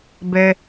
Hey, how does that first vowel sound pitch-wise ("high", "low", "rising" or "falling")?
low